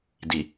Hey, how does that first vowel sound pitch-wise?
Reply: low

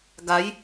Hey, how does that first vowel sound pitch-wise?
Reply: rising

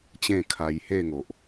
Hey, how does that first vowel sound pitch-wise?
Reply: falling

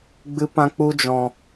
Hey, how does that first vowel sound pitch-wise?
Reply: high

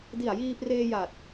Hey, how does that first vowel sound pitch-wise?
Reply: low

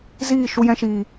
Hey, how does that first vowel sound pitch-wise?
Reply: falling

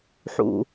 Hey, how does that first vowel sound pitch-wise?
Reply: high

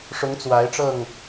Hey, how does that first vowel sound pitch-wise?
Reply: rising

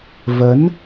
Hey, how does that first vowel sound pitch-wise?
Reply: rising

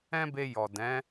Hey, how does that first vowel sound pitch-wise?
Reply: high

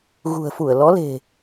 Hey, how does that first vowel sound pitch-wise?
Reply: low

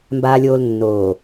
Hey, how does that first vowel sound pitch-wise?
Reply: low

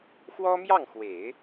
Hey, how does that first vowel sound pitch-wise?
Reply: high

